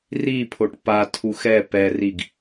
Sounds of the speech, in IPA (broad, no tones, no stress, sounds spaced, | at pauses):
r i pʰ o ʈ p a tʰ u x ɛ p ɛ r i ɡ